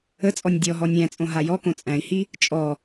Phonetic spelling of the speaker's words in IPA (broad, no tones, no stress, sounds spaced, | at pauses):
ə t͡sʼ ɔ nʲ dʲ ɔ ɦ ɔ nʲ æ̃ t͡sʼ õ ɦ a j ɔ k õ t͡sʼ æ̃ i̯ h i | t͡ʃʼ ɔ